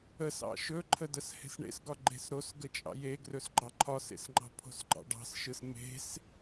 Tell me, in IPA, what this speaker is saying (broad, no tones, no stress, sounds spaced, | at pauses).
ə s ɑ̰ ʃ ɵ ǃʰ ə d ə s h e̤ s ɳ ḛ s ɡ ɒ ɡ͡ǃ e̤ s ɾ o s ɡ ə t͡ʃʼ ɑ̰ j e ɡ r ɵ s ɡ͡ǃ ɑ ǃʰ ɒ s ḛ s ŋ͡ǃ ɑ̤ pʰ o̤ s ɡ͡ǃ ɑ̰ ɖ ɑ̤ s ʃ ɯ s m e̤ s